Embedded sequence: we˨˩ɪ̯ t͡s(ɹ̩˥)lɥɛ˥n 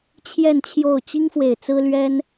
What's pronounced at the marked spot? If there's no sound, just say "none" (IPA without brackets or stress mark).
ɹ̩˥